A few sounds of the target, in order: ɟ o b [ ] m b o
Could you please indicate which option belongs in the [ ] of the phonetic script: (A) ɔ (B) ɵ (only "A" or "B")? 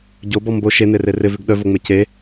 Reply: A